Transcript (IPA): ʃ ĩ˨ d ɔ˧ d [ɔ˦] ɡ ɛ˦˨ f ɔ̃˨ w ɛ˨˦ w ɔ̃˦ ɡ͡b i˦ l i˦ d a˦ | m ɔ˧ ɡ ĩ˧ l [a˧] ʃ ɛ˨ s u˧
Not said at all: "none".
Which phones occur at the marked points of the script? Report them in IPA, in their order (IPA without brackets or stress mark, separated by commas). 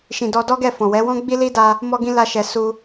ɔ˦, a˧